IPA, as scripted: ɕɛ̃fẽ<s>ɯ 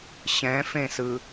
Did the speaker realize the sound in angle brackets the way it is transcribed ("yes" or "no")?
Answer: yes